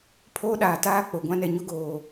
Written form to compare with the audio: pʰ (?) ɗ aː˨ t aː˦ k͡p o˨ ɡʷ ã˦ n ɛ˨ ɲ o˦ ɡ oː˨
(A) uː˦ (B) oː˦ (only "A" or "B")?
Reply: B